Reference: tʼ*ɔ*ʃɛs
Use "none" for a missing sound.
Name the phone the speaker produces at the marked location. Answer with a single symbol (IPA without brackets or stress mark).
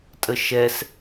ə